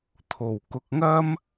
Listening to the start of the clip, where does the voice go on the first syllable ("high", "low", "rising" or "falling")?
low